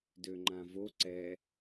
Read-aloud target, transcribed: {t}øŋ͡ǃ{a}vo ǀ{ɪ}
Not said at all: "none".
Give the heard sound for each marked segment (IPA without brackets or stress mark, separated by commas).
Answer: d, ã, ɛ